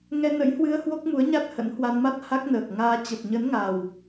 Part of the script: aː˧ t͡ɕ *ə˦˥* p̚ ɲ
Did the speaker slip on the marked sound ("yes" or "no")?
yes